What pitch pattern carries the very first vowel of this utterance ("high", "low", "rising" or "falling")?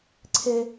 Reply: high